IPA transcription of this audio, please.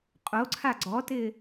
qʼoǀʰa ɡ͡ǀɔtɪː

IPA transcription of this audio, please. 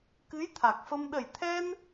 kɨ˧˥jt̪ʰa˨˩k̚fə˧m ɗə˨˩jt̪ʰɛ˧n

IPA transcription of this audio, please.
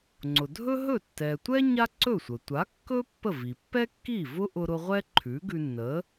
ŋ͡ǀʊ˩dʱɵ˥ɦɵ˥˩ tːɛ˩tʷɛ˥ ɲa˥ǀɵ˥˩sʷə˩ tʷa˩˥ kːɵ˥ pːə˥˩vi˩ pːɛ˥kːi˥˩ vʊ˥ ʔʊ˧ɾʊ˧ ʁʷɛ˥ǃʰʉ˩˥ɡʉ˧nːə˩˥

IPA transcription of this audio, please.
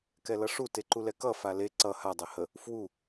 kɛlʌʂu teǃulɛkʌ fale ǀʌ ha dˤɛhə | fwu

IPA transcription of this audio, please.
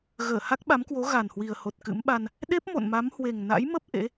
ɣəː˧˩ ha˦˥k̚ɓa˨˦mkwo˨˦ ɣa˨˩nhwi˨˩ə̯ho˨˩t̚ kɨ̰˧˥mɓa˧n | ɗe˦˥p̚ mo̰˧˨nma˨˦mhwe˨˩ŋ na̰˧˥jmə˦˥p̚ ʔḛ˧˥

